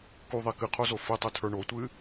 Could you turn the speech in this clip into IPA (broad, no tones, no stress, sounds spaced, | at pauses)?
k u ðˤ i k ɨ qʰ o z o f i tˤ ɨ tʰ ə˞ ɳ o tʷ ɨ